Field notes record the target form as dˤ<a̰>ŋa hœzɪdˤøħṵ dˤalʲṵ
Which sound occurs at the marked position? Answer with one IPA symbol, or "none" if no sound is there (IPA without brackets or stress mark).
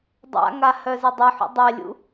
a̰